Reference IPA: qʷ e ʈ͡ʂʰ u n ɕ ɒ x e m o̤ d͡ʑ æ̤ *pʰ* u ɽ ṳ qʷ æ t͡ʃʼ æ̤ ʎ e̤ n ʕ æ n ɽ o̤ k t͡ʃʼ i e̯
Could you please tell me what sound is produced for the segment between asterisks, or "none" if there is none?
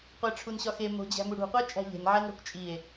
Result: m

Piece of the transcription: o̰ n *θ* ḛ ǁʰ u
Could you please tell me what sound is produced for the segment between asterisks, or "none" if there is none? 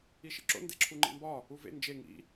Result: d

